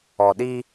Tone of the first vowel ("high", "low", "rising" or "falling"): low